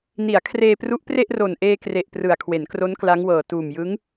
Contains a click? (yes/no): no